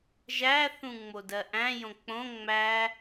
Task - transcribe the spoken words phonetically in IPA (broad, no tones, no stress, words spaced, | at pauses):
ʒæθũ ŋ͡modɜʔæ̃jõ k͡põ ŋ͡mæ